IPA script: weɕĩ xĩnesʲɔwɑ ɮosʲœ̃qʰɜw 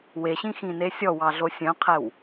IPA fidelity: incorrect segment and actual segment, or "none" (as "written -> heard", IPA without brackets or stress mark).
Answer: ɜ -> ɛ